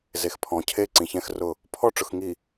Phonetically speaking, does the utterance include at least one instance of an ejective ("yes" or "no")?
no